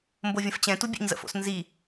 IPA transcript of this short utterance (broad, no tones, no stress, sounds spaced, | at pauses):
m b o vʲ ə̃ f t͡ɕ ɛ̃ t u bʲ ɛ̰ ɲ z ə̰ f o̰ s n z i